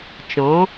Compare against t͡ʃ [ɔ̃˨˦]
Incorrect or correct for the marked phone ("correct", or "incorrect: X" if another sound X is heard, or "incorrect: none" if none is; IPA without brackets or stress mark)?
correct